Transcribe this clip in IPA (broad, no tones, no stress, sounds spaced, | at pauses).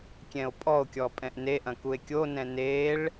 kʲ ɛ̃ o̯ pʼ ɔ o̯ kʲ ɔ pʼ ɛ̃ ʔ n e ʔ ɐ̃ k u e̯ kʲ o n ɛ̃ n e ɭ